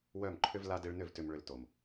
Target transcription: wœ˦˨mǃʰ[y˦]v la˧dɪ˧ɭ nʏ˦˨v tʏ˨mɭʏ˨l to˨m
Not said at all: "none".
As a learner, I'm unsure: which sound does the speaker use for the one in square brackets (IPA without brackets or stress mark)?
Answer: ʏ˦